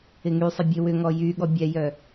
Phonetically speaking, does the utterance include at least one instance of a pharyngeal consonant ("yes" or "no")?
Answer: no